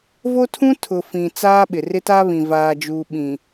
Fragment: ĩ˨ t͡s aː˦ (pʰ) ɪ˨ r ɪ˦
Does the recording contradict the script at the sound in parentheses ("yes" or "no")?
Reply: yes